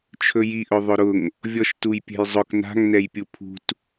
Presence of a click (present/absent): absent